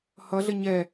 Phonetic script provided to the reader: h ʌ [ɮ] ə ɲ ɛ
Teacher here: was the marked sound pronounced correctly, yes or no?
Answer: yes